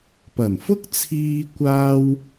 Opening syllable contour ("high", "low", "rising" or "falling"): low